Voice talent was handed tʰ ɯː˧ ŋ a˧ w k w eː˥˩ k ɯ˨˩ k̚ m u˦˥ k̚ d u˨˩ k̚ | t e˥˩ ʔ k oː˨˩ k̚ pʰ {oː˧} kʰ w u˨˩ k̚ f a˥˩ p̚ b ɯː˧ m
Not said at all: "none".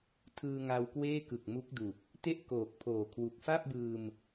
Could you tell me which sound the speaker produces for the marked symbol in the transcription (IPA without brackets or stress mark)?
oː˨˩